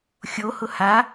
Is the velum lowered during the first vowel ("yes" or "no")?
no